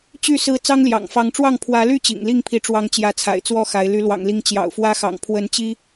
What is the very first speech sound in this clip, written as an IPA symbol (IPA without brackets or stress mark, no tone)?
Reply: t͡ɕ